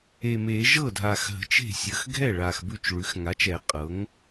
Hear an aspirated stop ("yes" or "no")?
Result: no